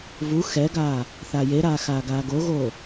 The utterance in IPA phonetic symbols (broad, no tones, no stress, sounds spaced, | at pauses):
v u x ɛ ɡ aː | θ a j e ɾ aː x aː ɡ aː ɡ o ɣ oː